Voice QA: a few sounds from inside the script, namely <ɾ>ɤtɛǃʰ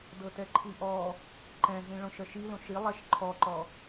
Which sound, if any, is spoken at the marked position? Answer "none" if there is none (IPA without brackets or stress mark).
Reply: d